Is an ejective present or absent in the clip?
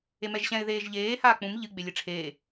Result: absent